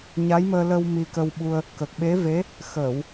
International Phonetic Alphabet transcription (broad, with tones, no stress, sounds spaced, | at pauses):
ɲ a˧˥ j m əː˧ l ə˧ w m i˧ k ə˧ w ɓ u˧ ə̯ | k ə˨˩ k̚ ɓ e˧˥ v e˧˥ | x əː˨˩˨ w